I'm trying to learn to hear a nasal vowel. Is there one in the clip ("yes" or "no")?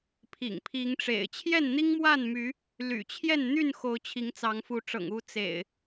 no